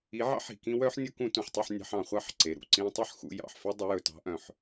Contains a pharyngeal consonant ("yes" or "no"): yes